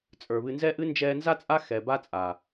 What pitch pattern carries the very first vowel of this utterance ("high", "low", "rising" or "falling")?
low